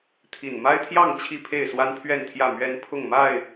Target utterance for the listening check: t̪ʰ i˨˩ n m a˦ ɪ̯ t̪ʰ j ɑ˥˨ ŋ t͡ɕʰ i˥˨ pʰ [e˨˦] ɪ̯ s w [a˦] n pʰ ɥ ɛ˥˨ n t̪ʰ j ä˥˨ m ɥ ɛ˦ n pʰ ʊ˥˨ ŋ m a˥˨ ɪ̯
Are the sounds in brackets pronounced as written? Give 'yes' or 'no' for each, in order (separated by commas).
no, yes